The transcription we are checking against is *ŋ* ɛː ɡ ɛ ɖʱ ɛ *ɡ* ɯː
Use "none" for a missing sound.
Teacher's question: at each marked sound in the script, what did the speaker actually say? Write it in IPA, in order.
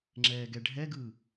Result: ŋ͡ǁ, ɡ

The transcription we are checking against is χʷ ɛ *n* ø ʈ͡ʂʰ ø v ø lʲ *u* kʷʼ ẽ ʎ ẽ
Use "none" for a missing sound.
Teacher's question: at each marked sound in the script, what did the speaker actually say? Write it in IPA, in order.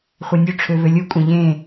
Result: nʲ, u

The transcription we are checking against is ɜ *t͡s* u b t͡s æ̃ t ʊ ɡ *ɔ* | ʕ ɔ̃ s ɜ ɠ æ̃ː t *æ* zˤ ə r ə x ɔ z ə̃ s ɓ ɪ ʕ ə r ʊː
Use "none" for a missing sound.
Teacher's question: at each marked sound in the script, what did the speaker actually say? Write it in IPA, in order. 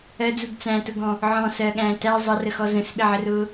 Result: d͡z, ɔ̃, æ

